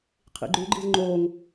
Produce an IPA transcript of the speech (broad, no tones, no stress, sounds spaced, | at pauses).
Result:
qʰ ḭ ɡ͡ǃ ʉ ɡ͡ǃ i z ŋ͡ǃ o ŋ